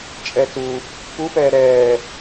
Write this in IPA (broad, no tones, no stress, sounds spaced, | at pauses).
t͡ʃʼ ɛ t u | p u p ɛː ɾ ɛː